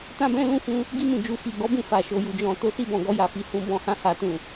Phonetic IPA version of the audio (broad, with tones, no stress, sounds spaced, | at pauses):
t ã˦ b ɛ̃˦ l ũ˦ f ũ˧ | ɡ i˧ m ũ˨ d͡ʒ u˨ f i˨ ɡ ɔ˨˦ b ũ˦˨ f a˨ ʃ o˨ j u˨ d͡ʒ ɔ̃˨ t o˧ s i˧ b ɔ̃˨ ɡ ɔ˧ j a˨ f i˧ h ũ˧ b ɔ̃˧ h ã˧ h a˨ t ũ˨